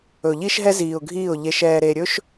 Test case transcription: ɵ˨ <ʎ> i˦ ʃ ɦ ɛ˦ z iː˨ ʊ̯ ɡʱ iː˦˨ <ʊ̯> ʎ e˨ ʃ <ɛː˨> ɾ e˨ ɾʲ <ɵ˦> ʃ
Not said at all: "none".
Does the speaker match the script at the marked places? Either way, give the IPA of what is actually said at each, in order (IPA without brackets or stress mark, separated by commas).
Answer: ʎ, ʊ̯, ɛː˨, ɵ˦